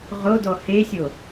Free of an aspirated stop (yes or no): yes